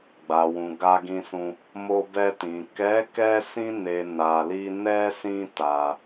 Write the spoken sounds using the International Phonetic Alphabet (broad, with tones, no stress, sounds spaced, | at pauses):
ɡ͡b a˨ w ũ˨ ɡ a˧ ɡ ĩ˧ s ũ˧ | m o˧ b ɛ˧ t ĩ˨ k ɛ˨˦ k ɛ˧ s ĩ˧ n e˨ n a˨ l i˧ n ɛ˦ s ĩ˦ t a˧